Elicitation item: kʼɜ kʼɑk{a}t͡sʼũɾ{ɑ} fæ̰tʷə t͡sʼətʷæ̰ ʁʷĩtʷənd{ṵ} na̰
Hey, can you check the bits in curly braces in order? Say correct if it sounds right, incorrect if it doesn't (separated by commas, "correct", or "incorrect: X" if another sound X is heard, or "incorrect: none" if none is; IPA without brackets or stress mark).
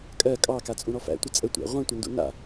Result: correct, incorrect: ɔ, correct